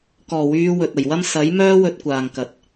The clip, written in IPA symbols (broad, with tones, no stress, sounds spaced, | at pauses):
k ɔː˨˩ w yː˨˧ w ɵ˨ t̚ ɐ˨˩ j w ɐ˥ m s ɐ˨˥ j m œː˥ w ɵ˧ t̚ kʷ aː˨ ŋ k ɐ˨ t̚